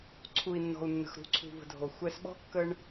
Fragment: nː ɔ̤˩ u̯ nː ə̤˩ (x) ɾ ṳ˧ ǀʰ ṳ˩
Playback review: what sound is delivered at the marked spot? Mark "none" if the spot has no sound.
x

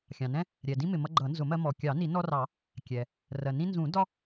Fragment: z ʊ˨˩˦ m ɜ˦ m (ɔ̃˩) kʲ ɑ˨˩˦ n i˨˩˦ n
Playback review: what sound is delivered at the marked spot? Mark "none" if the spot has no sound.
ɔ˩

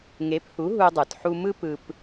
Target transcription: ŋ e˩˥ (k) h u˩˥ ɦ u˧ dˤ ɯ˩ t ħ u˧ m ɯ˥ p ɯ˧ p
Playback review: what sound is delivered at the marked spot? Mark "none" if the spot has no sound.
p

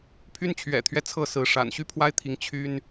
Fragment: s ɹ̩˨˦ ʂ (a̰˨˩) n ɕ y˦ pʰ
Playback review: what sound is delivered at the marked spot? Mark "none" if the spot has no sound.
a̰˨˩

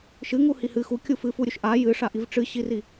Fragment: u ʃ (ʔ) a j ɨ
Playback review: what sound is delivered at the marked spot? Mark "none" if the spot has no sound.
ʔ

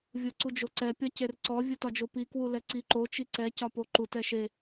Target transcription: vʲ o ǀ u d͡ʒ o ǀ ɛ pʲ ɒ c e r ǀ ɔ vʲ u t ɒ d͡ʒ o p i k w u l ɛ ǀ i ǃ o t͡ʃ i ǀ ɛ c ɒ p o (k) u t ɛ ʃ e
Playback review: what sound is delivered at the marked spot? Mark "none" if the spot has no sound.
ǃ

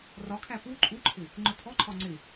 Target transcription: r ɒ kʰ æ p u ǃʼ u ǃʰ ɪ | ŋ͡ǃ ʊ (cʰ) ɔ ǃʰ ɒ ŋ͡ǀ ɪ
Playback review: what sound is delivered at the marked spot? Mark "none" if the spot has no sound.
tʰ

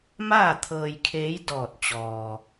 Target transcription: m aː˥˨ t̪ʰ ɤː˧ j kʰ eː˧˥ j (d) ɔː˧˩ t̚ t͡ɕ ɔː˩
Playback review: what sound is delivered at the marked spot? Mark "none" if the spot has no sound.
d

